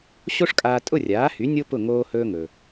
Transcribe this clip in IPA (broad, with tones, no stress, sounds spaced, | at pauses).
ɕ o˥ ʂ kʼ aː˧ tʼ ʊ˥˩ rʲ aː˩˥ h y˩˥ nʲ o˥ p ʊ˥˩ ŋ oː˧ h ɵː˧ ŋ ɵ˩